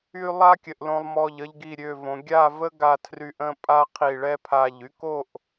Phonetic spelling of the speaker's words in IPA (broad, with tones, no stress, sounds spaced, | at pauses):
y˧ lˠ a˥ kʲ ə˩˧ ʔ l õ˧ lˠ m ɔ˧˩ ʎ ə˧ ʎ ɡ i˧˩ ɾʲ ø˧˩ v õ˩˧ ɡʲ a˥˧ v ə˥ ɡ a˧ tʰ r y˧ ʔ ə̃˥˧ pʼ a˥ qʰ i˧˩ ɭ ɛ˥˧ pʰ a˧˩ ʎ y˥ k o˥˧ ʔ